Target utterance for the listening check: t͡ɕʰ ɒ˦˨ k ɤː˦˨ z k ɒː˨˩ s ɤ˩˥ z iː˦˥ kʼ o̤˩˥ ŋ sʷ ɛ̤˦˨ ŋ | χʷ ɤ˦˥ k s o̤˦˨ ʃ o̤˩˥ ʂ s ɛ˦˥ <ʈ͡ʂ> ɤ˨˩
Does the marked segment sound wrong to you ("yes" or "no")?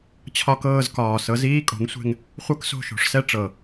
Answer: no